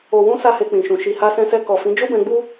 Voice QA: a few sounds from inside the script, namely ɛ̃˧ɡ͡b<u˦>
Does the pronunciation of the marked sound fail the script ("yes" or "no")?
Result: no